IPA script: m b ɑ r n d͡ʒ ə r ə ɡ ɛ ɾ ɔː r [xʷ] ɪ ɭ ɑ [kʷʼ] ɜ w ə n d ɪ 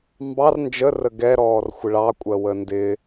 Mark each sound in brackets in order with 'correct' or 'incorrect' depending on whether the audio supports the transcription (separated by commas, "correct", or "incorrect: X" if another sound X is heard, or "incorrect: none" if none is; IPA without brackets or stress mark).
correct, correct